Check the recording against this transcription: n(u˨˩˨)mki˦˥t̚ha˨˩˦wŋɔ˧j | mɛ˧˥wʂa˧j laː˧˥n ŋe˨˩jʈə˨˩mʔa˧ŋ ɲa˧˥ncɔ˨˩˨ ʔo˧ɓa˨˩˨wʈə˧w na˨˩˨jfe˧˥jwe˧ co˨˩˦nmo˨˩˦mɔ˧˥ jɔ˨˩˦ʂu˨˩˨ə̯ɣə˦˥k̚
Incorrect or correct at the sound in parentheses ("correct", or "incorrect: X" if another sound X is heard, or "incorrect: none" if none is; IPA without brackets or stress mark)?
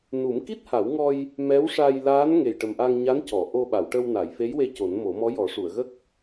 incorrect: u˨˩˦